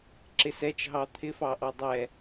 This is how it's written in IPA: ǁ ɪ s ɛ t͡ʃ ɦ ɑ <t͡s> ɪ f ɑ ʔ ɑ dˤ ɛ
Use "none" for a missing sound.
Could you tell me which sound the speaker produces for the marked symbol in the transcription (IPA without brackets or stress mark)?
t̪ʰ